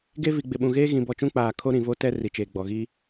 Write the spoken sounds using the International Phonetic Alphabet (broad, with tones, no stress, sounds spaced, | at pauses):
ɡ e˦ v i˨ ɡ͡b ɪ˨ ɓ ũ˨ ɣ eː˦ ɣ ĩ˨ b ɔ˨ t͡ʃ ũ˦ k͡p aː˨ kʰ o˦ ɾ ĩ˨ v o˦ t ɛ˦ r i˨ t͡ʃ eː˨ ɡ͡b ɔ˨ ɣ i˦